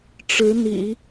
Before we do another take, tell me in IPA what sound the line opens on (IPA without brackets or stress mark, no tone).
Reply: ʈ͡ʂ